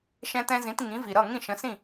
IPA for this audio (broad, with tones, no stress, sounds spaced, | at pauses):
ʃ ɛ̃˧ t ɛ̃˧ z ĩ˩˥ t ŋ ĩ˩˥ v i˩ ɾ ʌ˥˩ ŋ ĩ˥˩ ʃ ə̃˩˥ s ĩ˥˩